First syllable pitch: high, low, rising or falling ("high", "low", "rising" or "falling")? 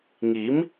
rising